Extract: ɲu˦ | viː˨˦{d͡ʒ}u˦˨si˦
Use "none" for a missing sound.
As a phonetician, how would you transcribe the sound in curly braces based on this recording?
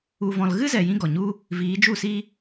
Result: d͡ʒ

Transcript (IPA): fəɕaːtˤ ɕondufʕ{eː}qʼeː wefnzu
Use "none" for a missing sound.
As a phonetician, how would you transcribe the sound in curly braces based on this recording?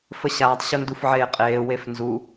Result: eː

